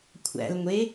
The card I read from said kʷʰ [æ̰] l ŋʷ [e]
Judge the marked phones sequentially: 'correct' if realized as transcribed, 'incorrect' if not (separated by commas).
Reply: correct, correct